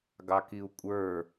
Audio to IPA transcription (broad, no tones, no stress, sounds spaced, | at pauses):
ɡ ɑ k i u̯ kʷʼ ə˞